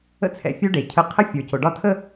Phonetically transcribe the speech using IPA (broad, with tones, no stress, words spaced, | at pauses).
ə̰˦t͡sʰɛ̰˨fʲu˦ ɖe˨cʰə˦ qʰə˦fʲə˞˨co˨ ɖɒ˦tʰə˦